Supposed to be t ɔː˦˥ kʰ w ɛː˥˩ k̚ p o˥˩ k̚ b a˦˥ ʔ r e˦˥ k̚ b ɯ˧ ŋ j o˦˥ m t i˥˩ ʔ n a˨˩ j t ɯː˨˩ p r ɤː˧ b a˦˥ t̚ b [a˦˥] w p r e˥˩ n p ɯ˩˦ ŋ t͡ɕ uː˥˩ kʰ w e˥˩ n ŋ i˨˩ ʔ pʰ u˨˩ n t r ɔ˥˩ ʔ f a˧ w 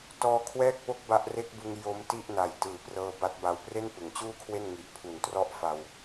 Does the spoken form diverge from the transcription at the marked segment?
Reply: no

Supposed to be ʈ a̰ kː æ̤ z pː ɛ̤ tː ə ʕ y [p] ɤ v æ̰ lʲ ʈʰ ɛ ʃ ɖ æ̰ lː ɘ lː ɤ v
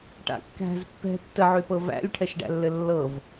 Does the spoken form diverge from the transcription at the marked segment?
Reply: no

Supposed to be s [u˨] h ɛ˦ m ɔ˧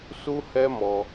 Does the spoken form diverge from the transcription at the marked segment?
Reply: yes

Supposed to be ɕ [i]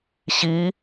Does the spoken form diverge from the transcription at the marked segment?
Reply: no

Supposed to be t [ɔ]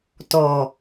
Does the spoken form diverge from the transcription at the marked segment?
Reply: no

